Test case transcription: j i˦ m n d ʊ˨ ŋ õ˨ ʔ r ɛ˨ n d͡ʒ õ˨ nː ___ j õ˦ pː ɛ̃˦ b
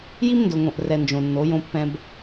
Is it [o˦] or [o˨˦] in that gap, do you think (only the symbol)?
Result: o˨˦